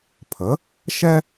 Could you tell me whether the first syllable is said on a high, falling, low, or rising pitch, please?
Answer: rising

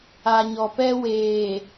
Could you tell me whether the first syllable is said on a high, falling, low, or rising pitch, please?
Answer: low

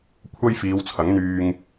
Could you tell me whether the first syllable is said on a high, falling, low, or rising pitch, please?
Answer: high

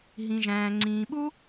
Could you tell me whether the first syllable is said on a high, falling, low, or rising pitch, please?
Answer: low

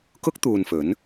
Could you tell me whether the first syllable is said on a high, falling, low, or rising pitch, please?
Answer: high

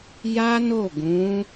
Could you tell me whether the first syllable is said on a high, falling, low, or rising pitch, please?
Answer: high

